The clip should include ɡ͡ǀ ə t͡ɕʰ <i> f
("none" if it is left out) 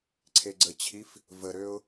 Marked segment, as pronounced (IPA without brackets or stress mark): i